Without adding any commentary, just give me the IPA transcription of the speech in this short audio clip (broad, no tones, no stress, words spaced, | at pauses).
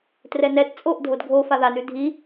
trɛnɛt t͡sʼoʔ dʱodɡʱo faðanʉ dʱi